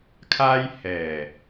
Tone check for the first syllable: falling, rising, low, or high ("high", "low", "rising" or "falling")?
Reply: high